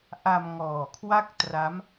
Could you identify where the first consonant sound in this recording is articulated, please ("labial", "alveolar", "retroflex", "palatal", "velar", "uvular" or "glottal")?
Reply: glottal